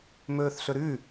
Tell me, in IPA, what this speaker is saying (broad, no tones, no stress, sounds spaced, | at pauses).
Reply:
m ɵː θ ɬ ɵ ɾ ʉ